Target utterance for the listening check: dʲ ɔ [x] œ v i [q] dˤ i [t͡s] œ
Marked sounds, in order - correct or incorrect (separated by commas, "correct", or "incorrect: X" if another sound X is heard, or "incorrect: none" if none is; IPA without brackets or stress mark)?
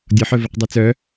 incorrect: ħ, correct, correct